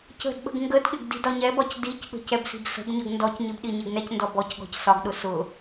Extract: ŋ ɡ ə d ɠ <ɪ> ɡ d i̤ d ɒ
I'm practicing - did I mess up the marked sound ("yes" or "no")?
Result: no